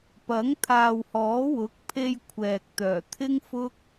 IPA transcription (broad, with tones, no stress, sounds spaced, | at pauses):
p ɐ˨˥ ŋ t̪ʰ aː˨ w h ɔː˨˥ w ʊ˨˥ k̚ pʰ e˧ j kʷʰ ɛː˨ k̚ t̪ œː˨˩ t̪ʰ ɪ˥ ŋ f ʊ˥ k̚